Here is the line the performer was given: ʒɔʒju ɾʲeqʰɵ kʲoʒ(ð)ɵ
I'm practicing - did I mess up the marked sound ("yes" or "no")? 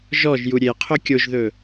no